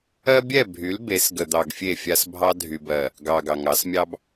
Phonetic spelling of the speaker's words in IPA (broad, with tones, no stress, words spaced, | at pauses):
ɜ˦bʲɛ˦˨bʱy˨˦l be˨˦sɡə˨ d̪ɑ˨ɡfʲe˦˨fʲa˦s bʱɑ˦ dʱy˨bɜ˨ | ɡɑ˨ ɡɑ˨ŋɑ˨˦smʲɑ˦b